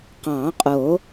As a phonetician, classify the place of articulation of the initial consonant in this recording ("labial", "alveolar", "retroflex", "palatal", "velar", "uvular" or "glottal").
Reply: uvular